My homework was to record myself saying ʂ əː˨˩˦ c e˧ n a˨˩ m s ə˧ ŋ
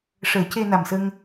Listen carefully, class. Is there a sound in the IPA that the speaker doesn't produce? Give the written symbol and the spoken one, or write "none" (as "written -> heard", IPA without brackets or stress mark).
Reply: none